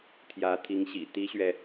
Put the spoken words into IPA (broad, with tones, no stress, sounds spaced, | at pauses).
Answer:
t̪ʰ j ä˧˥ t̪ʰ i˧˥ ŋ ɕ ḭ˨˩ t̪ i˥ ɕ ɥ ɛ˨